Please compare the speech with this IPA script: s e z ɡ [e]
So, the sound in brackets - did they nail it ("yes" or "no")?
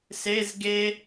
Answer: yes